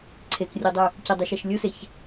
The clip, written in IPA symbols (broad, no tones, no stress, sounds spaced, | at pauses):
ǀʰ e k rʲ o dˤ ʉ | c ə dˤ ʉ ʃ ɛ ʃ lʲ u s e ç